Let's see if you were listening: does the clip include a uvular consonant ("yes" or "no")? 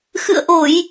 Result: no